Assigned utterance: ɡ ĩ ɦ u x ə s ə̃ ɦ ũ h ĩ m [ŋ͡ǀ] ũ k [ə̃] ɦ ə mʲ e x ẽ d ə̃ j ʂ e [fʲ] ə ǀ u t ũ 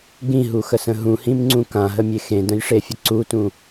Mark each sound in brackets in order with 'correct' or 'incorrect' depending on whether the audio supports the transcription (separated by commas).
correct, incorrect, correct